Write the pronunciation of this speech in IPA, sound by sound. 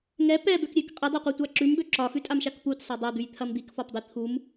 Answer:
ŋ ɛ p ɛ b ø k ɾʲ ø k qʼ i dˤ e qʷ i tʷ a ǁ ʉ m b ø ǁ ɒ x ʉ tʼ a m ʃ a k p u t sˤ a dˤ a d̪ ʉ j t̪ʰ ɐ m d̪ i k f ɒ p dˤ i t̪ʰ u m

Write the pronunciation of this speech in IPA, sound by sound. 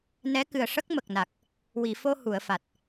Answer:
n ɛ˧˥ k ɨ˨˩ ə̯ ʂ ə˦˥ k̚ m ə˨˩ k̚ n a˨˩ k̚ | w i˨˩˨ f o˧ h u˨˩˨ ə̯ f a˨˩ t̚

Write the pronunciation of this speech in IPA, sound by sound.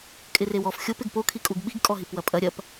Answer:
kʼ ɪ r e w ɔ f xʲ o p ɪ ɡ p o kʰ i kʼ u ɡ ɓ i ɡ kʼ ɔ ɦ i p w ɐ pʼ ɐ ɾʲ ɐ p

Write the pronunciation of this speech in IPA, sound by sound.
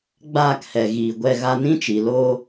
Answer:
ɡ͡b aː˦˨ k h ɛ˨ ɣ iː˨ ɡʷ ɛ˧ ɣ a˧ n ĩ˦ t͡ʃ i˨ l oː˦

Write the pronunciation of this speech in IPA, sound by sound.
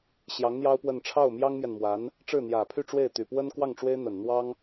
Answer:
ɕ j ɑ˧˥ ŋ n̪ j ɑ˥ ʊ̯ p w ə˥˧ n ʈ͡ʂʰ ɑ˥˩ ʊ̯ m j ɑ˥ ŋ m j ɛ˨ n m w a˧˥ n | ʈ͡ʂ ɻ̩˥˩ n̪ j ä˨˩ pʰ y˥˧ ʈ͡ʂ w e˥˩ ɪ̯ t̪ y˨˩ p w ə˥ n k w ɑ˥˩ ŋ ʈ͡ʂ w e˥ ɪ̯ n̪ ə˨˩ n n̪ w ɑ˥ ŋ

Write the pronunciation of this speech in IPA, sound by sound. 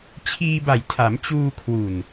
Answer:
t͡ɕʰ iː˧ b a˨˩ j tʰ a˩˦ m t͡ɕ uː˧ kʰ w u˨˩ n

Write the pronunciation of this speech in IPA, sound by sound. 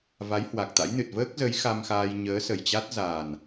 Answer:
v a˨˦ j h w a˨˩ k̚ t̪ a̰˧˥ j n ɨ˨˩ t̚ v əː˦˥ k̚ z ə˨˦ j x a˧ m x aː˧ j ɲ əː˨˦ s ə˨˩ j t͡ɕ a˦˥ t̚ z a˨˩ n

